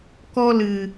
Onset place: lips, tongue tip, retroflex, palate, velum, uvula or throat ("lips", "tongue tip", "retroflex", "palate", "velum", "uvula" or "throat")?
velum